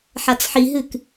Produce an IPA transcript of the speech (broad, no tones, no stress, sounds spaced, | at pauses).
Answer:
ħ a t͡s ħ i ɦ ɨ k